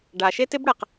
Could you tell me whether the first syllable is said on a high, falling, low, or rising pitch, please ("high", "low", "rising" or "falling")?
low